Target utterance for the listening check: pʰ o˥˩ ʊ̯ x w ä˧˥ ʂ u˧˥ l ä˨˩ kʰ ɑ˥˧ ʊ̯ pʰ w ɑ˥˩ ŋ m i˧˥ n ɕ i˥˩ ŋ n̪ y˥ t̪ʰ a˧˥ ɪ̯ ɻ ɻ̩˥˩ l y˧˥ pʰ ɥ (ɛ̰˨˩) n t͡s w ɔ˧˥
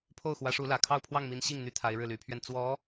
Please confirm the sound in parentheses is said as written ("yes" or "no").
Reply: no